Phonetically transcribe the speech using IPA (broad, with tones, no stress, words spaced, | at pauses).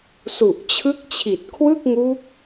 su˨˩ʔt͡ɕʰɯ˦˥k̚t͡ɕʰi˨˩t̚ kʰwɯ˥˩k̚ŋu˦˥k̚